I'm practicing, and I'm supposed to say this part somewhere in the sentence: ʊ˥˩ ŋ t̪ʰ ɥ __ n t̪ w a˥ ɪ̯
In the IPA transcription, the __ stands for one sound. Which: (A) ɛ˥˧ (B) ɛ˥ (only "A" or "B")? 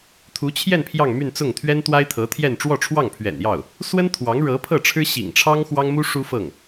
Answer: B